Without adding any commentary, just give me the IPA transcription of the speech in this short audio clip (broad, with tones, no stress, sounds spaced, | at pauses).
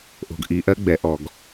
ʔ o̤˨ ɡ ʔ i˨ ʔ ɜ˦ ɡ͡b ɛ˨ ʔ ɔ˨ ɡ